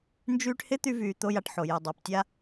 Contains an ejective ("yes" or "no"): no